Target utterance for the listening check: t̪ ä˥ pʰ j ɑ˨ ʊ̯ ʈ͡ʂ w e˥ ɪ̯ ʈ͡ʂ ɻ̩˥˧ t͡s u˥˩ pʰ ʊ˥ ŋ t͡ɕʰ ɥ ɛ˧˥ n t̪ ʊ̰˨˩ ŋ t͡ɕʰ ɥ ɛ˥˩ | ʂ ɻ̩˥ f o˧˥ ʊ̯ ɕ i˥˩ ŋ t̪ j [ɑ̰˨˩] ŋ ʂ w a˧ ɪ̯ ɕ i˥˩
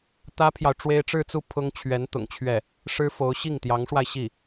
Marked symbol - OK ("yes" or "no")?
no